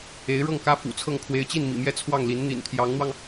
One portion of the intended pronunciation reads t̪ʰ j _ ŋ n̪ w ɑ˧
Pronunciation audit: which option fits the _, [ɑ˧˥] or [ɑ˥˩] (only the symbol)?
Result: ɑ˧˥